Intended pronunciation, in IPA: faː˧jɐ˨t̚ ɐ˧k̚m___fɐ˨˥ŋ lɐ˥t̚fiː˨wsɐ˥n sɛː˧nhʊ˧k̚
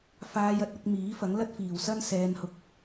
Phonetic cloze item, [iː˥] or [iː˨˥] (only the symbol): iː˨˥